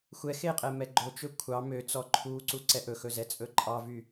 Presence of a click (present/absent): present